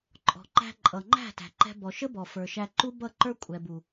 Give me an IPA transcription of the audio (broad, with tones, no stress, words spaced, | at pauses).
ǃʼɔ̤˨ǃæ̤˧ ǃʼʌ˨ŋ͡ǃæ̤˦˨ tæ̤˨ǃɛ̤˧ bɔ˨ʃə˦bɔ˨ fə˞˨ʃæ˧ǃu˦ bʌ˦˨ǃə˞˦ kʷʼɛ˨bu˨